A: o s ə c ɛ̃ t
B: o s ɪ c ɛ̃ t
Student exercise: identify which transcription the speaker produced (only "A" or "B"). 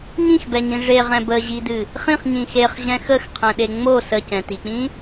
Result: A